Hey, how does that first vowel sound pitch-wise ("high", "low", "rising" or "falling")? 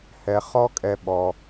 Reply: low